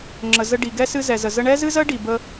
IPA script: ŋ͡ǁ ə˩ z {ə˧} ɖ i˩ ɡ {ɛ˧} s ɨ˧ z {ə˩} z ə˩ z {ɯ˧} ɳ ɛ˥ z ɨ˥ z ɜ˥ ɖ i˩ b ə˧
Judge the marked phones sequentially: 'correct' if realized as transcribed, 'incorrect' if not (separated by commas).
correct, incorrect, incorrect, incorrect